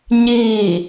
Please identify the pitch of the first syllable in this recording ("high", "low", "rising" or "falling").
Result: falling